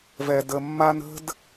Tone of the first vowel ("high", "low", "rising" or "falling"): low